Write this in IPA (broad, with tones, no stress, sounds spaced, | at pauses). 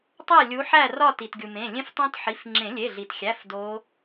tˤ æ˥˨ lʲ u˨˦ ħ æ˥˨ r ɒ˥˨ t i˩ t ɡʲ u˩ m ẽ˩˧˩ lʲ ẽ˦˥ f tˤ õ˦˥ t ħ i˩˧˩ f ŋ͡ǁ ẽ˨˩˦ lʲ e˩˧˩ ɮ i˩ t xʲ æ˩˧˩ f d o˨˦